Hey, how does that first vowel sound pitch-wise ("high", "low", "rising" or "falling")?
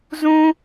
high